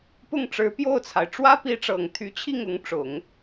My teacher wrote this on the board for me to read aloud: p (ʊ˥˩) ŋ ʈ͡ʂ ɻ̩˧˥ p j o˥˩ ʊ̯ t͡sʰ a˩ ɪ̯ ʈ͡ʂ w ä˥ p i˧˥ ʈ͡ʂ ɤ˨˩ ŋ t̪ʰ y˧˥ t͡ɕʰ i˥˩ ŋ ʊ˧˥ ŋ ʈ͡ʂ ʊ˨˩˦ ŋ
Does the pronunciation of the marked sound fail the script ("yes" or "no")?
no